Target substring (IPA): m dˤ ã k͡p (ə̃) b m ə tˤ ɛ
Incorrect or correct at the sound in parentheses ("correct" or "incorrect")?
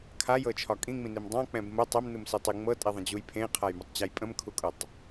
incorrect